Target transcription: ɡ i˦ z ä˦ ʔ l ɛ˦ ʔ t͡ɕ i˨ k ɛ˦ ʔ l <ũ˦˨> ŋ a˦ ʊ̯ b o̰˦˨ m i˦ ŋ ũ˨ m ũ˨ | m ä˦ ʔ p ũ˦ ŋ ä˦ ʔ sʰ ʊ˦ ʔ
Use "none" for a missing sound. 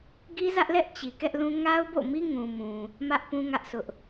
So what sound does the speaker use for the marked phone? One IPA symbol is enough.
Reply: ũ˦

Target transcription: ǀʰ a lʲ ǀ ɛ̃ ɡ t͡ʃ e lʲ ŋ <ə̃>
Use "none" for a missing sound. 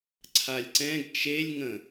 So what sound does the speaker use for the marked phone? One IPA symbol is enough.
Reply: ə̃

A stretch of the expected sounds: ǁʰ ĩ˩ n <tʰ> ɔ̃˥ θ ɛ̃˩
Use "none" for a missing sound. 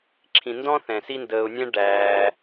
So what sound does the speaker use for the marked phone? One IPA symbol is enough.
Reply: d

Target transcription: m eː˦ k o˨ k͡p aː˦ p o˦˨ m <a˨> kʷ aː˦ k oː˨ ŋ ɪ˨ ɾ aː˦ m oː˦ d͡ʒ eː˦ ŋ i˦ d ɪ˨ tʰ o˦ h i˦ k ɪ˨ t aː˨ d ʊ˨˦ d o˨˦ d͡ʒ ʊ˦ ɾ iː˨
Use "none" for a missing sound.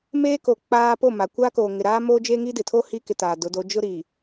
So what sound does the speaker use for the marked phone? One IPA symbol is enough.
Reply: a˨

